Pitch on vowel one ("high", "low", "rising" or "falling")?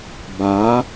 rising